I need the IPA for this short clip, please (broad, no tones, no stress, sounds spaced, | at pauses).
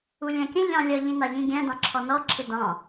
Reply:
u lʲ æ̃ kʲ ə̃ ʎ ɑ̃ lʲ ʌ ʎ ĩ n ɑ ʎ ĩ ɡʲ æ̃ d ɑ̃ ǁʰ ɔ n ɔ ǁʰ ɪ d ɑ̃